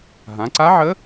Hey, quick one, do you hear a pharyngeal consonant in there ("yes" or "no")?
yes